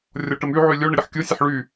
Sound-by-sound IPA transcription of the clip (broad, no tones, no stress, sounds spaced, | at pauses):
rʲ ɔ ʈ ə m y ʕ y lʲ o ɳ ə ɾʲ ə ħ kʲ o sʲ ə ħ ɭ y